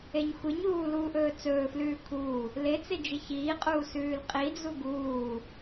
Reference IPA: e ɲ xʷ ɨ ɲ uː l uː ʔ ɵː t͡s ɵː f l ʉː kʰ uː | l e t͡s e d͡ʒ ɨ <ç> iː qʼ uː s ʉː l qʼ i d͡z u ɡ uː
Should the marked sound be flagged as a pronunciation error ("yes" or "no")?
no